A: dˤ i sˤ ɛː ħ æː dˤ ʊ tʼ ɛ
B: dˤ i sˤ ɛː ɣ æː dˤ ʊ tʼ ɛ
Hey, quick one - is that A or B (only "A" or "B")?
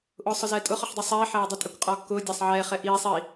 A